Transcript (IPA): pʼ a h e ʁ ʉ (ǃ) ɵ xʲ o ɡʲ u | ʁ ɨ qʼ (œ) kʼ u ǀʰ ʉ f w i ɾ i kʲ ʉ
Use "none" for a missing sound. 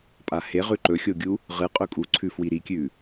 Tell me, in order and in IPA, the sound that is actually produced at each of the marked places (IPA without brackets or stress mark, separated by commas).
ǃ, ɵ